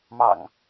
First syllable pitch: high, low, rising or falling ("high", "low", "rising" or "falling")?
low